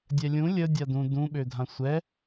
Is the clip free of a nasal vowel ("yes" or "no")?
no